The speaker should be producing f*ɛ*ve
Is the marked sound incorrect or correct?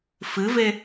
incorrect